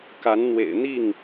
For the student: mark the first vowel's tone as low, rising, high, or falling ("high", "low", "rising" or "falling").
rising